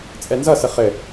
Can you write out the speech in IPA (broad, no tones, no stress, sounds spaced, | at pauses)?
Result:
t͡sʼ ɛ n z ʌ s ə χ ɘ